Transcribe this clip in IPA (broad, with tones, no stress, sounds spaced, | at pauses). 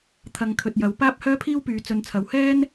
t̪ʰ ɐ˨˧ ŋ kʰ ɵ˨ t̚ j ɐ˨˥ w p aː˥ p̚ h œː˥ pʰ iː˥ w p yː˨˧ t͡s ɵ˨˧ n t͡sʰ ɐ˨ w h ɛː˥ n